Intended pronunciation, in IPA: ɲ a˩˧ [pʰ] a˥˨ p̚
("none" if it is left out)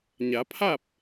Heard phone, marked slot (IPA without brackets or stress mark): pʰ